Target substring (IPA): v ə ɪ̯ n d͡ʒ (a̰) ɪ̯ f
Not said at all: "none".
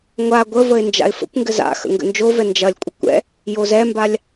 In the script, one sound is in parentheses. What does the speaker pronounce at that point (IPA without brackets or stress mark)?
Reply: a̰